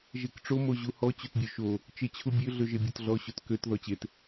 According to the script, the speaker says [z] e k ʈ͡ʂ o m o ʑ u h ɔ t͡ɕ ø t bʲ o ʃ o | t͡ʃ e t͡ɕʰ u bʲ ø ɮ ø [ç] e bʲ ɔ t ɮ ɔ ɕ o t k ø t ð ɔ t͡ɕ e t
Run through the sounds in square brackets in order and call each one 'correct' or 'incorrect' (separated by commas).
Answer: incorrect, incorrect